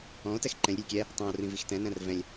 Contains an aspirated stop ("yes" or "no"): no